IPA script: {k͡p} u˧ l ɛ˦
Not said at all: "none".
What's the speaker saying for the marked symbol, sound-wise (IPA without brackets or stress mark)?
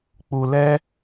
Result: k͡p